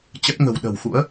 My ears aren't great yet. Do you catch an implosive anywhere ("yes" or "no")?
yes